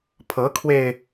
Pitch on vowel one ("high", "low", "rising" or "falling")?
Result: rising